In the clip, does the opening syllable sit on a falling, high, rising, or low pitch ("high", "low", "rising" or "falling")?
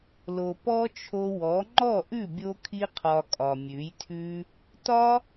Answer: low